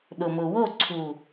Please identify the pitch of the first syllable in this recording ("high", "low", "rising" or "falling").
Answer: low